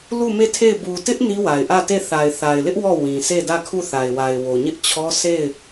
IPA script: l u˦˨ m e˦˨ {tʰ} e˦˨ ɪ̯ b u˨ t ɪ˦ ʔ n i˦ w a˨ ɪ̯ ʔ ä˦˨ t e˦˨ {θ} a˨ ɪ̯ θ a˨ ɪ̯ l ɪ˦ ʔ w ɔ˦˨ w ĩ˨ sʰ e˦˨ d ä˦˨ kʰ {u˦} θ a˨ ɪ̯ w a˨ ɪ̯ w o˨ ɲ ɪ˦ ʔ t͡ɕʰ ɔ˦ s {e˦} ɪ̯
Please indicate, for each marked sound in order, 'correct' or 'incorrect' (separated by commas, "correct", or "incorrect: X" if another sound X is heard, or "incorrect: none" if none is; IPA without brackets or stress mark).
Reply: correct, correct, incorrect: u˦˨, incorrect: e˦˨